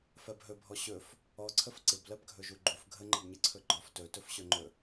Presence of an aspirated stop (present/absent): present